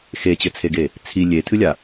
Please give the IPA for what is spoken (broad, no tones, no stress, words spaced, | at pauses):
xet͡ɕɘt͡sʰeɡe | t͡sʰi lʲetʰɨlʲa